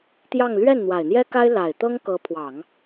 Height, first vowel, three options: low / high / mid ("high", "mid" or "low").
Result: low